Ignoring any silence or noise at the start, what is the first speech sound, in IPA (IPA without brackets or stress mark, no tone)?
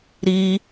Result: ɾ